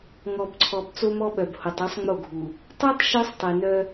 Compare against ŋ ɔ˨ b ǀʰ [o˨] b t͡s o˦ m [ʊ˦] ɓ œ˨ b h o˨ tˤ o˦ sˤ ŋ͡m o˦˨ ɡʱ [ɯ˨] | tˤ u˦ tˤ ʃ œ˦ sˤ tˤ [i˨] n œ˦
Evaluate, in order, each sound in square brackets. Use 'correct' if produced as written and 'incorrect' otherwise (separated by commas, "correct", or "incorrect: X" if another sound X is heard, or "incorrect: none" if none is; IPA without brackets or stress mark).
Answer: incorrect: ɔ˨, incorrect: ɔ˦, incorrect: u˨, correct